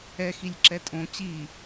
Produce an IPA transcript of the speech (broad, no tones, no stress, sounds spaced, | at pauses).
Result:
ɛ x i lʲ ǁ ɛ tʼ õ t͡ɕ i